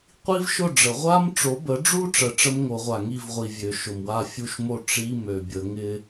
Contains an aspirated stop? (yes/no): no